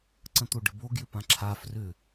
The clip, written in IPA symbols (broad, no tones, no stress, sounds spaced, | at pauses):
ǀ ə̃ t̪ o ɖ ɪ b o ɡ j ʏ p ã ǁʰ a f r ʏ